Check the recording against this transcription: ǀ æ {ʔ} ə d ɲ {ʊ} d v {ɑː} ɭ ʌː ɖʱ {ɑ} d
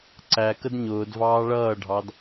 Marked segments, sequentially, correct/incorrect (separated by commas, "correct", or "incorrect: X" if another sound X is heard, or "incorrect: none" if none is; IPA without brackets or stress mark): incorrect: k, incorrect: ʊː, correct, correct